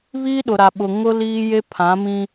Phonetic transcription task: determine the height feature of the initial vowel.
high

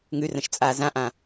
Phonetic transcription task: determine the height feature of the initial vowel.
high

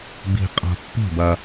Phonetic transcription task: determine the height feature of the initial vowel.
high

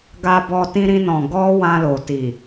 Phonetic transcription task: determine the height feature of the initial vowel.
low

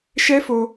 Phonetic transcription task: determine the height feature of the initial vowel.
mid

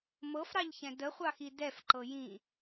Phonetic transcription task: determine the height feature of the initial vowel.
mid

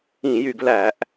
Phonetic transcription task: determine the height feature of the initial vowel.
high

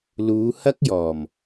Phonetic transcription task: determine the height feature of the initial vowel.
high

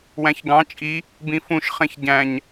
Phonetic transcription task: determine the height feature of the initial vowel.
low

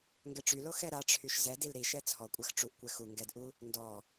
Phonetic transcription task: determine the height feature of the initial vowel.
mid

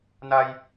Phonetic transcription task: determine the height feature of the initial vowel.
low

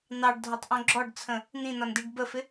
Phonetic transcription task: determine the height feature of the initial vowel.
low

